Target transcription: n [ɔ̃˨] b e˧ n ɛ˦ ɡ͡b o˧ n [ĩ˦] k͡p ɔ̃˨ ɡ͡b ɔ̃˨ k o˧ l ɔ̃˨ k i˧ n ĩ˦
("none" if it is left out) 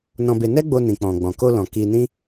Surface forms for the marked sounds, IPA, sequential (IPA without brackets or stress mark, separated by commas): ɔ̃˧, ĩ˨